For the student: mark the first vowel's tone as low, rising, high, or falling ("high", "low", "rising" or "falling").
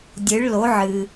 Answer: rising